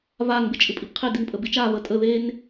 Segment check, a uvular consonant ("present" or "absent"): present